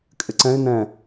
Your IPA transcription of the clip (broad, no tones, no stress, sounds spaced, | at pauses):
kʼ ɪ ǀ ɛ̃ ɪ̯ n ɛ̃